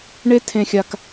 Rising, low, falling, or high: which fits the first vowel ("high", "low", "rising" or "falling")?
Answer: high